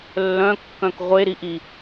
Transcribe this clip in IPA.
lː œ̃ kː œ̃ k ʁʷ e ɾ i ʔ i

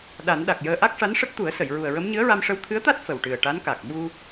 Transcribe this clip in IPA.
ɗ a˨˩˦ n ɗ a˨˩ k̚ j əː˧ ʔ a˦˥ k̚ ʂ a˧˥ n ʂ ə˦˥ k̚ t̪ u˨˩˦ ə̯ s ə˨˩˨ j ɹ u˨˩ ə̯ ɹ ə˧˥ m ɲ ɨ˧˥ ə̯ ɹ a˧ m ʂ ə˧˥ w t̪ʰ ɨ˧˥ ə̯ t̪ a˦˥ t̚ f ə˨˩ w ʈ ɨ˨˩ ə̯ ʈ a˧˥ n k a˨˩ k̚ ɓ u˧

